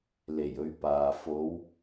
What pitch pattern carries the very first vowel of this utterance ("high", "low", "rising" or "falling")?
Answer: low